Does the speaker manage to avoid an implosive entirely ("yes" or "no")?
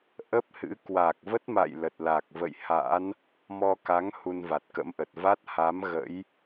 yes